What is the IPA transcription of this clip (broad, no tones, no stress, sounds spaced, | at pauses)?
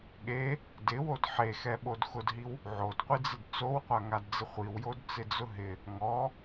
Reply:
ɠ e | d ɪ w o d ħ e x ɛ ɓ o d x ʊ d ɦ i w | ʕ o d qʷ i d͡z ɪ d t͡s o w qʷ a ŋ a d d͡z ɪ χʷ i w j o d t͡s ɪ d͡z ʊ ɦ ɪ | ŋ ɔ